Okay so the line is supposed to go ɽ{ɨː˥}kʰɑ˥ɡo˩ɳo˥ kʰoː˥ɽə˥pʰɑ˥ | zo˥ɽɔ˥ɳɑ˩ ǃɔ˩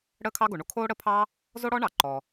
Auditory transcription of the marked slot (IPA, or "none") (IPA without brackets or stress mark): əː˥